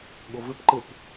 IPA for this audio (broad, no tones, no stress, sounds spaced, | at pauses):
ɠ ʊ v ɪ p ǃ ɪ p